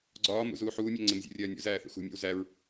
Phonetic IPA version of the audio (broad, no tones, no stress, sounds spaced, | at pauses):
ɡ͡ǀ ɒː m ṵ z uː ħ uː mʲ æ ŋ͡ǀ ɪ m zʲ ṵ rʲ ɜː nʲ ṵ z æː θ ṵ x ṳ mʲ æ̰ w z æ ɹ